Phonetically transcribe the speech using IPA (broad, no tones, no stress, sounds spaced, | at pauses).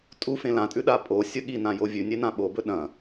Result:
tʼ u f ẽ l ã tʼ ʉ ɗ a pʼ o sʲ ɵ ɠ i n ã j o vʲ ʉ nʲ e n ã ɓ o b ɵ ɗ ɐ̃